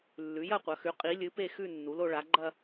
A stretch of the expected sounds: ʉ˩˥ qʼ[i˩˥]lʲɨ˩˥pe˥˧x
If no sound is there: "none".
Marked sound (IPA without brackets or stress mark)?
i˩˥